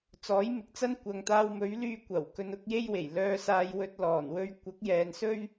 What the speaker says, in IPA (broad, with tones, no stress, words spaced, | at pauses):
t͡sɔː˨˥jmɪ˨˥k̚t͡sɐ˥n kʷɐ˨ŋt̪aː˧wmɵ˨˥ɥ lyː˧kʷɐ˨˩w kɵ˧nʊ˨˥k̚je˥jwe˨˩j lœː˧saː˧j wɵ˧t̚lɔː˨˩nwɵ˧ɥ kʷɐ˨˥k̚jɛː˨nsɵ˥ɥ